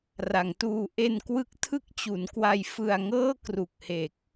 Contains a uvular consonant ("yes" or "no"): no